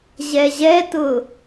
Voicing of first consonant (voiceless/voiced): voiced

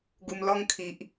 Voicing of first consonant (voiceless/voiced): voiced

